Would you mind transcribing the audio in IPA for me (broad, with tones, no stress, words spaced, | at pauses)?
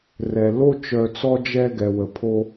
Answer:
rɛ˨ lo˦ t͡ʃœ˧t͡sɔ˦d͡ʒɛ˦ ɡɛ˨wə˨pʰo˧